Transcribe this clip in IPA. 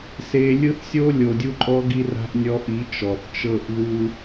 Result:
s e˧ lʲ ɯ˦ θ sʲ o˦ lʲ o˨ dʲ u˦ ǃʼ ɔ˦ ɡ i˦ r a̤˦ ʔ nʲ ɔ˧ ʔ i˨˦ t͡ʃ ɔ˨ θ t͡ʃ ɤ˦˨ ʔ ð u˦

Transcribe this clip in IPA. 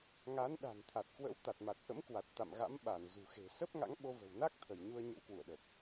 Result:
ŋ a˨˦ n ɗ a̤˨˩ n t̪ʰ a˨˩ t̚ k w ə̰˧˥ w t̪ a˨˩ t̚ m a˨˩ t̚ ʔ ə̰˧˥ m k w a˨˩ t̚ t̪ a̰˧˨ m ɣ a̰˧˥ m ɓ a˧˩ n z ṳ˨˩ x e̤˨˩ s ə˦˥ p̚ ŋ a̰˧˥ ŋ ɓ o˧ v ə̤˨˩ w n a˦˥ k̚ t̪ʰ ə˧˩ j ɲ u˧ ə̯ ɲ ə̰˧˥ w k w ṵ˧˨ ə̯ ɗ ə˨˩ p̚

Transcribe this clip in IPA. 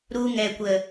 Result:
ɾ u˧ ŋ ɛ˨ kʷ ə˨

